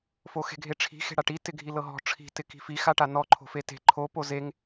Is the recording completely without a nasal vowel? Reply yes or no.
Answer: yes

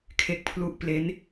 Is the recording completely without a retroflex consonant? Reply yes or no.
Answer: yes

